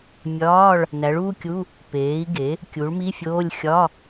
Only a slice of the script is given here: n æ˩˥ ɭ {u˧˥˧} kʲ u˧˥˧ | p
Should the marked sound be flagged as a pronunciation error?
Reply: no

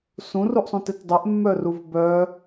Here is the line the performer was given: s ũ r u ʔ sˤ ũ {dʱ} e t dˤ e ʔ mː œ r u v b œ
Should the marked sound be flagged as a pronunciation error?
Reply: yes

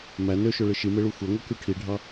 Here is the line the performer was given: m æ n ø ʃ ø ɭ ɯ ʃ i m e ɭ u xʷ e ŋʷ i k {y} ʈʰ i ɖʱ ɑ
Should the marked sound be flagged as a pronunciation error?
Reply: no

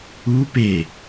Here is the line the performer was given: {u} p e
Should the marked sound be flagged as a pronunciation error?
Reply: no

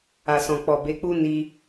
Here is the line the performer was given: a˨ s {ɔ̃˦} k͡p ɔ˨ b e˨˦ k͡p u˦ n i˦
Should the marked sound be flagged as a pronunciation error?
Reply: yes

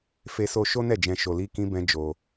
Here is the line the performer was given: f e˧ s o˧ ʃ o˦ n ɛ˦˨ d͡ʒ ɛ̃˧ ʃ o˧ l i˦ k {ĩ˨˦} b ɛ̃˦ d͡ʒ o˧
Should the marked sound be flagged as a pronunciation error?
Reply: yes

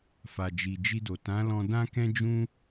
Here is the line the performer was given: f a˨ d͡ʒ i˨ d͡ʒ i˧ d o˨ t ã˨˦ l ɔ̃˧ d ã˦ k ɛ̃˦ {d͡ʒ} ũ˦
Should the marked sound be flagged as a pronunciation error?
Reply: no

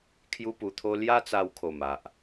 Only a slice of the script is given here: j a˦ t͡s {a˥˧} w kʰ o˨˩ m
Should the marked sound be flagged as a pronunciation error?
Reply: yes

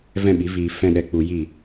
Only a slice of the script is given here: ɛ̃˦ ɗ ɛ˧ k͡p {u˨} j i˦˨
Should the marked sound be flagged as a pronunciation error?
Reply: yes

